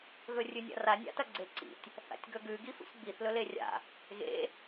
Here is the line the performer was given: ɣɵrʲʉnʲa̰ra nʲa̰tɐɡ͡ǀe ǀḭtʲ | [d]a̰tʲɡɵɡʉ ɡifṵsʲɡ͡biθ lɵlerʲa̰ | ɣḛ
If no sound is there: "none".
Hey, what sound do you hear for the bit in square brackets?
θ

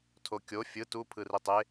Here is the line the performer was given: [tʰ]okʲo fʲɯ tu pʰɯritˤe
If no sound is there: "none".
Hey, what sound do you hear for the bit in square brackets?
tʰ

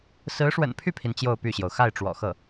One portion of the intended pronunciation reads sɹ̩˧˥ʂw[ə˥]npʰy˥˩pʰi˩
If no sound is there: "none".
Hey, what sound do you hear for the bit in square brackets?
ə̰˨˩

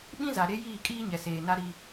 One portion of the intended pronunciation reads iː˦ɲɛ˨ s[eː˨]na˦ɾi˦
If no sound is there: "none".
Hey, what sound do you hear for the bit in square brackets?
eː˨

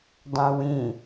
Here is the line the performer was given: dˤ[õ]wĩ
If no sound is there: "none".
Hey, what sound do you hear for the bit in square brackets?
õ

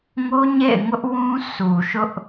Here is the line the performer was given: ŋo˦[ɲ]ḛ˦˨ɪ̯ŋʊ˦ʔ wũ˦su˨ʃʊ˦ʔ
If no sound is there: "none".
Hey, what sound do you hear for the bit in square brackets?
ɲ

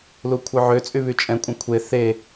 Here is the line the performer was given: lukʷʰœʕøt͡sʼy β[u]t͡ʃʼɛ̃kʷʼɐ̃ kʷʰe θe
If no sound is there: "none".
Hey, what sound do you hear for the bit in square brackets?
y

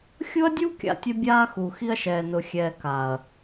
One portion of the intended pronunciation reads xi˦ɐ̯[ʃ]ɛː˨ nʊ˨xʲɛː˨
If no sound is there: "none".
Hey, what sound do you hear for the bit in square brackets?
ʃ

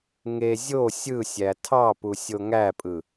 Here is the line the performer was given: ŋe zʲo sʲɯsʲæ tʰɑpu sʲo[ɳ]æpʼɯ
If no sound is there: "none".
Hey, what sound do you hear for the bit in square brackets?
ŋ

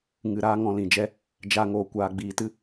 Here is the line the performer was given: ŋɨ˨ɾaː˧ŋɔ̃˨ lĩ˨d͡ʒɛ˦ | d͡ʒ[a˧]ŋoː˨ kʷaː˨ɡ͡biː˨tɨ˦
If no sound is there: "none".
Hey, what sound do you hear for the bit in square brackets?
a˧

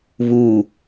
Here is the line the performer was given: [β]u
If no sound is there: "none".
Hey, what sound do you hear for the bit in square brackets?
β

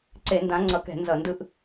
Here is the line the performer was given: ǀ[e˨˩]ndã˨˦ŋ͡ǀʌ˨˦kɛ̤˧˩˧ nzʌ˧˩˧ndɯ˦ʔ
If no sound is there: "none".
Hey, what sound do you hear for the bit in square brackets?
e˧˩˧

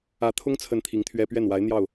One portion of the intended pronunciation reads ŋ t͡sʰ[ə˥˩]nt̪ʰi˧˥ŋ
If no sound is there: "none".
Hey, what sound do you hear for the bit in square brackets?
ə˥˩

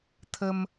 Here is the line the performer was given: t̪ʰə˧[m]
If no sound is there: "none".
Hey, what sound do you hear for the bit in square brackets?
m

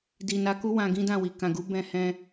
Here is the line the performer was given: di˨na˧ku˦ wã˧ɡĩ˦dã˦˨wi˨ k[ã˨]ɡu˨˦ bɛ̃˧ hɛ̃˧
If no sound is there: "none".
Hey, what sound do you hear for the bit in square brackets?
ã˨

